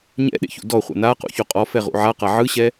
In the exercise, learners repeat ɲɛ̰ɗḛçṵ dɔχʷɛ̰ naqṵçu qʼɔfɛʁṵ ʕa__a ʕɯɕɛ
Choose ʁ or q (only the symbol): q